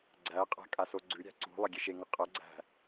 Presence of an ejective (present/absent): present